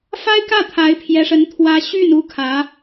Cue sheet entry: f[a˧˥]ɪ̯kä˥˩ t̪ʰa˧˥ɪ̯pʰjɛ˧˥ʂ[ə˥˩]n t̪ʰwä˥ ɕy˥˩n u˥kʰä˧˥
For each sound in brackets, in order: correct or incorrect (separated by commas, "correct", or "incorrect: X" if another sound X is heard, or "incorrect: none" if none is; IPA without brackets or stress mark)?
incorrect: a˥, incorrect: ə˧˥